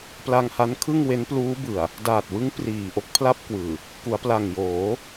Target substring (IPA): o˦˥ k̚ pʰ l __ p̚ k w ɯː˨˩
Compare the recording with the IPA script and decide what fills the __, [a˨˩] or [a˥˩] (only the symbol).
a˥˩